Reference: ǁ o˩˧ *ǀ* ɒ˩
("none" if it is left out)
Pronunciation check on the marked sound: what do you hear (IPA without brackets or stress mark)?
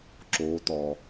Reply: t̪